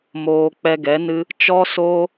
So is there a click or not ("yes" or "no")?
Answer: no